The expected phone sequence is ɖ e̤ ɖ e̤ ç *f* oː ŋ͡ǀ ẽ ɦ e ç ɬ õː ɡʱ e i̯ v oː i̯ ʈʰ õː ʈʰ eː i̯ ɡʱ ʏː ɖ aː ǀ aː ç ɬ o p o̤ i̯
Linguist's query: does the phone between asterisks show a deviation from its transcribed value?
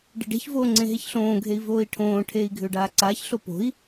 yes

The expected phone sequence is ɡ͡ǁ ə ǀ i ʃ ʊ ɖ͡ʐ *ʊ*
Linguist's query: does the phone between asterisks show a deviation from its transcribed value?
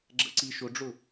no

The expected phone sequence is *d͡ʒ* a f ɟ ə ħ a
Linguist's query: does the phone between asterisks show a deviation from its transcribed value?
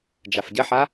no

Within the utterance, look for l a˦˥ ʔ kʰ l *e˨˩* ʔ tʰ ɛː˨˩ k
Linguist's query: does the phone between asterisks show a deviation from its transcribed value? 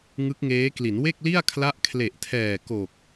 no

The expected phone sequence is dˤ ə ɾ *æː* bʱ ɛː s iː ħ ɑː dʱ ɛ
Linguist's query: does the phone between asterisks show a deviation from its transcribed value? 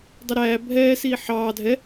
no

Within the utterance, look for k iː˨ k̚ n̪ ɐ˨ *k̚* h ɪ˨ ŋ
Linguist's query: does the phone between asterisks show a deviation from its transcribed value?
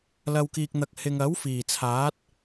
no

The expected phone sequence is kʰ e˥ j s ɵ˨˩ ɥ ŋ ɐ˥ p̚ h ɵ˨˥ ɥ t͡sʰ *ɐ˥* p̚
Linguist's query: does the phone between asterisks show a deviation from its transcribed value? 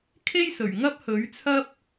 no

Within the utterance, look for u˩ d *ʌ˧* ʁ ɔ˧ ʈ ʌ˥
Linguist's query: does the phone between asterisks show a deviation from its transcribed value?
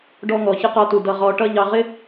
no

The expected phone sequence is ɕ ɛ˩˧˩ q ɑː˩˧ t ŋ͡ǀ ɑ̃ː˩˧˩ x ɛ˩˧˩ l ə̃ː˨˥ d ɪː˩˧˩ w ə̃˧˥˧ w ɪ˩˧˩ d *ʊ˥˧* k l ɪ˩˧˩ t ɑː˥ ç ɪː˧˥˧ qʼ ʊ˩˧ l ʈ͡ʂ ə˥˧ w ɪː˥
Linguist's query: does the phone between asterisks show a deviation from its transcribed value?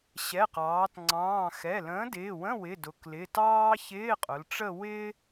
yes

